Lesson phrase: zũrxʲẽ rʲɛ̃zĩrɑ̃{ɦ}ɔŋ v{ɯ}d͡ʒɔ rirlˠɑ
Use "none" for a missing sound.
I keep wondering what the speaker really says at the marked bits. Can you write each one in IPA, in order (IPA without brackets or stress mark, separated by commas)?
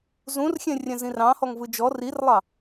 h, ɯ